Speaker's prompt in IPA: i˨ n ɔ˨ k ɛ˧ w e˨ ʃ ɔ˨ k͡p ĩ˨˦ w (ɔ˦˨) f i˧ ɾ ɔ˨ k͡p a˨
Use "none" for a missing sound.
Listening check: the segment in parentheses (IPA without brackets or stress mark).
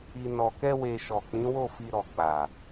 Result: o˦˨